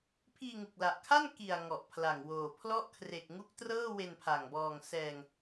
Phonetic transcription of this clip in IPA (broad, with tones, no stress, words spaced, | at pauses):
pʰiː˧ŋu˨˩k̚la˨˩ʔkʰa˥˩n ki˨˩a̯ ŋɔ˨˩ʔpʰla˨˩ŋwoː˨˩ pʰlɔ˦˥ʔkʰre˨˩k̚ŋu˦˥k̚ trɤː˥˩ we˧npʰa˨˩ŋ bɔː˨˩ŋ sɛː˨˩ŋ